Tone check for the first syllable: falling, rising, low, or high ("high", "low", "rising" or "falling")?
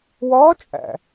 rising